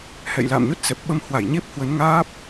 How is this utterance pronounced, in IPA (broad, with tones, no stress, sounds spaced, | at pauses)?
h ɛ̰˧˨ j l a̰ː˧˨ m ɲ o˦˥ t̚ s ɛ˨˩ p̚ ɓ ə˧ m h w a˧˩ j ɲ e˦˥ p̚ h w ə˨˦ n ŋ aː˦˥ p̚